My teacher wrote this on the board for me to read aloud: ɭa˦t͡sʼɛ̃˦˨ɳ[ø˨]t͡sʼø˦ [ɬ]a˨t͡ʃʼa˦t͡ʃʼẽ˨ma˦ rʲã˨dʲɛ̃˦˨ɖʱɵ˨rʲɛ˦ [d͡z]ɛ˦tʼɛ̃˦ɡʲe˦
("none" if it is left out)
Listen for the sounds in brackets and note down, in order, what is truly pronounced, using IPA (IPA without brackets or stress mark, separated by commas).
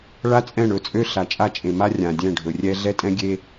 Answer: ɵ˨, ɬ, ɮ